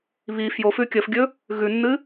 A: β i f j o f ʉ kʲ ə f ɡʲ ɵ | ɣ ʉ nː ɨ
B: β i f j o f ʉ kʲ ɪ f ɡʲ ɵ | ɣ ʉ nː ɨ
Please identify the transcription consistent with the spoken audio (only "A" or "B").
A